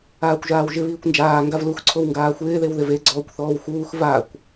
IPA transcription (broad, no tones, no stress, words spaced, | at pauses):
aːkʷʒaːwʒɪ βiːkʷnd͡ʒaː ŋɡavlux ǀʰowŋɡaːxʷɪː ðewðɪve ɡ͡ǀɔːkʷθɔːwxuːx vakʷ